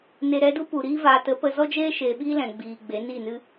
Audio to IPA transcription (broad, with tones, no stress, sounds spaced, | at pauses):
n e˨ ɾ ɛ˧ d u˦ p u˨ ɾ iː˦ v aː˨ t ə˨˦ p ə˧ z ɔ˦ d͡ʒ eː˦ ʃ eː˨ ɓ iː˦ l ɛ̃˨ ɡ͡b iː˨ ɡ͡b e˨˦ n iː˦˨ n ɨ˦